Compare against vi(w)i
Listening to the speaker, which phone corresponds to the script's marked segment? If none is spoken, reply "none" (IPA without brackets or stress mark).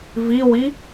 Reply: w